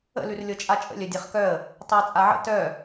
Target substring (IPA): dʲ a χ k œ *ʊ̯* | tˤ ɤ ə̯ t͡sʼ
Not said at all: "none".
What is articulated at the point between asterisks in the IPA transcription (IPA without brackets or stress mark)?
ə̯